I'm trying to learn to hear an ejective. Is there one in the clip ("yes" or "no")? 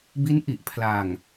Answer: no